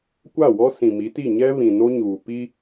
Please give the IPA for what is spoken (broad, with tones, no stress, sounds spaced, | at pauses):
kʷ a˦˨ w ɔ˦ s ĩ˨ m i˨˦ t i˦˨ ɲ ɛ˦ β ĩ˨ n o˦ ɲ uː˨ p i˦